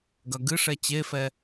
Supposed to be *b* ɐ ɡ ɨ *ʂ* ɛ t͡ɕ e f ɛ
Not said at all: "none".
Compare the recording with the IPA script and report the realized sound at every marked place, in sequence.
ɡ, ʂ

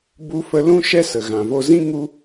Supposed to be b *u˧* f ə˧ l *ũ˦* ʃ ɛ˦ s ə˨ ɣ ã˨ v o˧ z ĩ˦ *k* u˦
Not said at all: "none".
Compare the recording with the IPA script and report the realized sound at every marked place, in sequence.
u˧, ũ˦, ŋ

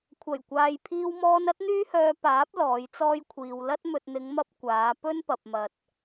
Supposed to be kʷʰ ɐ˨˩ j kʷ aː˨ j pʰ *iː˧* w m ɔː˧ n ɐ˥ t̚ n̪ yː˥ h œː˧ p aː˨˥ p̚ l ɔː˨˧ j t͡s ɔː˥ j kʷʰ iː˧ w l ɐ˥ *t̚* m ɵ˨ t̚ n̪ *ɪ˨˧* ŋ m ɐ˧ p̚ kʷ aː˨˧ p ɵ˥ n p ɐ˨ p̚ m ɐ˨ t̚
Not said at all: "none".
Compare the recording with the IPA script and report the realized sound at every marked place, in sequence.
iː˧, t̚, ɪ˨˧

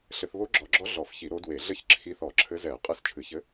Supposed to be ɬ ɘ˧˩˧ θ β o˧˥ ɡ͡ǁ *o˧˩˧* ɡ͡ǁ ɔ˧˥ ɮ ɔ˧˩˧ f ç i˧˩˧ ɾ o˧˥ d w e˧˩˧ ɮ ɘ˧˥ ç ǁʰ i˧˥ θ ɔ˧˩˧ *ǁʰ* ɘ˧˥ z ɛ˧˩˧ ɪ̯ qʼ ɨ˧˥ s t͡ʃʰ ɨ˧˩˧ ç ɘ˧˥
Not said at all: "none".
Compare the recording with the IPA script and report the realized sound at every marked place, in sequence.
ɔ˧˩˧, ǁʰ

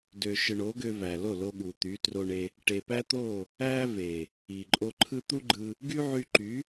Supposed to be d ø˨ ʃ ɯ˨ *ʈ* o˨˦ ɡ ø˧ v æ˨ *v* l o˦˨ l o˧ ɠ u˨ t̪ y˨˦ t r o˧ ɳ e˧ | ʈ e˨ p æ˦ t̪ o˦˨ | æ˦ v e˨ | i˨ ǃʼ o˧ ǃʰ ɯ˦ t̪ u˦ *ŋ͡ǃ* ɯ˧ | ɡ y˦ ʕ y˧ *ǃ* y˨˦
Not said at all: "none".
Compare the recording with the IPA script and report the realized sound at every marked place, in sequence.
ɳ, none, ɡ͡ǃ, ǃ

